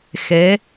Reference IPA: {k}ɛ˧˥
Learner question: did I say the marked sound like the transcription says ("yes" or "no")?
no